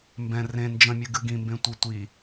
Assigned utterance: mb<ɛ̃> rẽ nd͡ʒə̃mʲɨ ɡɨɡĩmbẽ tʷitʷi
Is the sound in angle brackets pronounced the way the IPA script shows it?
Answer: yes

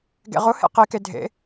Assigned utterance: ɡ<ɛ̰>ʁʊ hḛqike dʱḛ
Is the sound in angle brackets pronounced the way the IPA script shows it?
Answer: no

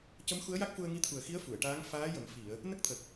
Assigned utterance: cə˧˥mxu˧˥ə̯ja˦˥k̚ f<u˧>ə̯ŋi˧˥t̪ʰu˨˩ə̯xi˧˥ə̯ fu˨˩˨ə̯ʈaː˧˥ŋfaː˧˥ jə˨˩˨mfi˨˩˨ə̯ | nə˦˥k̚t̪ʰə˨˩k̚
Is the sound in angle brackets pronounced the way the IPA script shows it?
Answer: yes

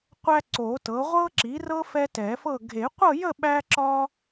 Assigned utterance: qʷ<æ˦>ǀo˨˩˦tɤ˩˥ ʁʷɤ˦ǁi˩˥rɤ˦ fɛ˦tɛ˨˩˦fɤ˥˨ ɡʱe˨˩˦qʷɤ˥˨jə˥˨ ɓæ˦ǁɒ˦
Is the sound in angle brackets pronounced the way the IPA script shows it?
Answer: yes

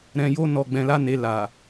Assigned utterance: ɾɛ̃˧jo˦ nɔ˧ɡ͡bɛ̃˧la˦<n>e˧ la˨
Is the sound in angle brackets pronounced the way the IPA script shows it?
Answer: yes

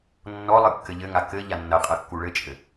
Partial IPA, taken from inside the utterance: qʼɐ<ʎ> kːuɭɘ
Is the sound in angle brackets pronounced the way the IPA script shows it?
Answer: no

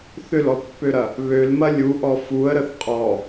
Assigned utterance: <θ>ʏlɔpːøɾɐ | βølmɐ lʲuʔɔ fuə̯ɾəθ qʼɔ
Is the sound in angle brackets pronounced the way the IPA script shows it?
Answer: yes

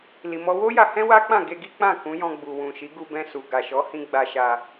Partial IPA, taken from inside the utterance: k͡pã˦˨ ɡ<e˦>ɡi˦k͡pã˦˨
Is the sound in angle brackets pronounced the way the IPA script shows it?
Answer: no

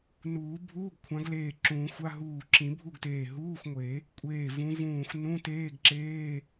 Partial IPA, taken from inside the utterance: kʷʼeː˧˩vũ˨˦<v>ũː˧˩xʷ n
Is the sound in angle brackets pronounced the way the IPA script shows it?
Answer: yes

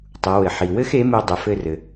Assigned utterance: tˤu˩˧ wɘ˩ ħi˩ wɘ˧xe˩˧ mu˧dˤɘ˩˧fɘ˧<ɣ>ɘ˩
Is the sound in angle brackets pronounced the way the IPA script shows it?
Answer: no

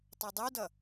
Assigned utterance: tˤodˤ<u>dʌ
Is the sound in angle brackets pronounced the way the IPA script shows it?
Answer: yes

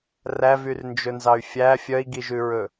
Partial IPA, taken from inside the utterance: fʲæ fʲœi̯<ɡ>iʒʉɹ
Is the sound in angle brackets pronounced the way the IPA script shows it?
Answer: yes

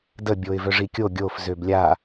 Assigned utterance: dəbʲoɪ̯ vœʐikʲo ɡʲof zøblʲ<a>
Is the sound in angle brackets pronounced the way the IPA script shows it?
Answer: yes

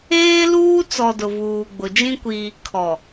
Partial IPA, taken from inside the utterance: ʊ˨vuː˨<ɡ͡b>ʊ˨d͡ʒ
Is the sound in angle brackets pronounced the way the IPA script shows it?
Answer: yes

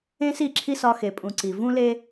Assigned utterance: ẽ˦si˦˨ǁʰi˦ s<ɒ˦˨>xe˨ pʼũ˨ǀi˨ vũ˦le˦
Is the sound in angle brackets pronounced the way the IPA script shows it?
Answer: no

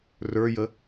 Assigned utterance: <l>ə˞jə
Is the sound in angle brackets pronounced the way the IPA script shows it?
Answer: no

